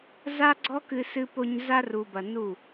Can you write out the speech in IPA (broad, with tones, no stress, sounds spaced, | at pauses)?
z a˦ ɡ͡ǀ ɔ˦ k ɨ˧ s ɨ˧ p o˧ ɲ z a˧ r u˨ b ɐ˨ n u˦˨